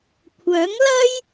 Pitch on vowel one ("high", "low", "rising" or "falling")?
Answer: rising